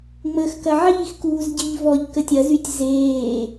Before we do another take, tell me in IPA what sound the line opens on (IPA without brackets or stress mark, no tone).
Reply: ŋ͡m